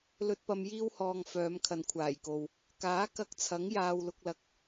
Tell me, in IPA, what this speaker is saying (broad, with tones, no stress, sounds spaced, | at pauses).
l ɵ˧ t̚ p ɐ˧ m j iː˧ w h ɔː˨ ŋ f œː˨˧ m kʰ ɐ˨ n kʷʰ aː˨˩ j k o˨ w | k aː˨˥ k ɐ˧ k̚ t͡sʰ ɐ˨˥ ŋ j aː˨ w l ʊ˨ k̚ l ɐ˨ k̚